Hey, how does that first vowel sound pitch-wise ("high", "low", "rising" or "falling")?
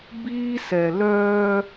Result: high